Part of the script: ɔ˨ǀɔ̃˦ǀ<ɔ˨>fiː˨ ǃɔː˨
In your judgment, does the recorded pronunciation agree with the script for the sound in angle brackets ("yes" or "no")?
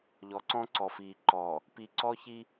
yes